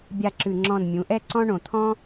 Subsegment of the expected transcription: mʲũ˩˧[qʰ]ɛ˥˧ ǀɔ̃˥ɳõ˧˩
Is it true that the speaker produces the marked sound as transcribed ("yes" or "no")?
no